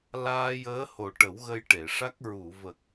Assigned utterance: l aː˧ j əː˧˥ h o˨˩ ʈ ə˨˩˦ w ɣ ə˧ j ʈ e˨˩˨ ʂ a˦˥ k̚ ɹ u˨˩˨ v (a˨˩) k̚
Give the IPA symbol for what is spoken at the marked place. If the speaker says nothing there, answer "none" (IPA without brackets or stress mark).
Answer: ə˨˩